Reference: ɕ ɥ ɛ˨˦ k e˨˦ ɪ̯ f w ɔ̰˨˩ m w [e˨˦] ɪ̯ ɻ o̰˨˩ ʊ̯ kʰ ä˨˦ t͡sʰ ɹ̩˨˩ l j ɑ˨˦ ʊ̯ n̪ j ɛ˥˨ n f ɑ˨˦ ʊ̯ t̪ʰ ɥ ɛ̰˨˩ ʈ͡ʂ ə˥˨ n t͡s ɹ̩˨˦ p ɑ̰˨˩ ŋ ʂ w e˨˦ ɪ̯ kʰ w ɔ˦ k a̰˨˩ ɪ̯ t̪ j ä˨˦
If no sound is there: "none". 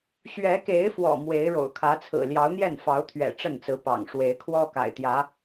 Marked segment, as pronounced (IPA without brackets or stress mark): e˨˦